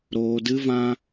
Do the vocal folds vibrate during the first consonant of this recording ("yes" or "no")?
yes